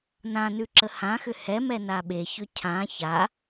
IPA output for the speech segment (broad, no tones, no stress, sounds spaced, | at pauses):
n ã n ʉ ǁ ə h ã x ʏ h ɛ m ɛ n a ɓ e ç ʏ cʰ ã ç a